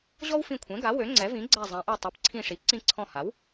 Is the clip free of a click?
no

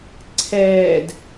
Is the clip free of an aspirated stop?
no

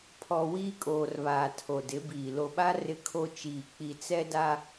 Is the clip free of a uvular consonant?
yes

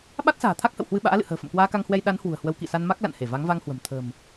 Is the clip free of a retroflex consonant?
yes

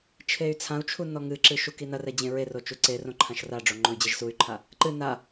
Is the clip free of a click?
no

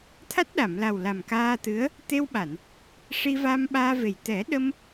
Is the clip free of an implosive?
no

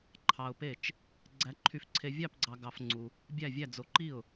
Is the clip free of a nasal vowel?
yes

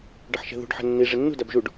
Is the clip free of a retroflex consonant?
no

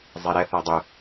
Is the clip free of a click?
yes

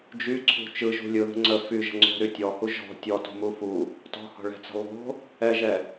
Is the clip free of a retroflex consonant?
no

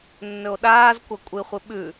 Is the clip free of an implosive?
no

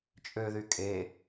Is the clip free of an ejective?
no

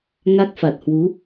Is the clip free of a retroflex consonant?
yes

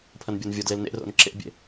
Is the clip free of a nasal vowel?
yes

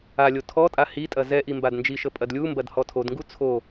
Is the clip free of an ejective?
no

